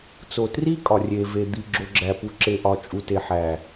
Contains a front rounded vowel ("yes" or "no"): no